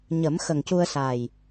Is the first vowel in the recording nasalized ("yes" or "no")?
no